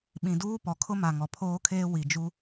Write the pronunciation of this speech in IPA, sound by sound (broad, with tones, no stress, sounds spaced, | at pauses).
ɓ ĩ˨ d uː˦ p ɔ˨ kʰ ʊ˦ m a˨ ŋ ɔ˨ pʰ oː˦ kʰ eː˦ w i˨ d͡ʒ u˦